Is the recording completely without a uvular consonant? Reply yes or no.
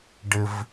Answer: yes